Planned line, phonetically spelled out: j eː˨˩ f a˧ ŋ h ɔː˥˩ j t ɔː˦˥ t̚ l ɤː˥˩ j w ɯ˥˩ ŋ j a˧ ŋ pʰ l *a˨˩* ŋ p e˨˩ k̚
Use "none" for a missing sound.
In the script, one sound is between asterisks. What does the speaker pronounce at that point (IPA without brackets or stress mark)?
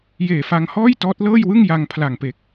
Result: a˨˩